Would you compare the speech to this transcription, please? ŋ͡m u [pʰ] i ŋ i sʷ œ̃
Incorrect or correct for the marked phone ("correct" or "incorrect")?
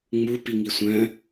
incorrect